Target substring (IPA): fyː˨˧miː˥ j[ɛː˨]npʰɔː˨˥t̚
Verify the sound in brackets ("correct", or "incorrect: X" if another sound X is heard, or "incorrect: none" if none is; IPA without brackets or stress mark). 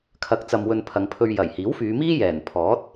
incorrect: ɛː˨˩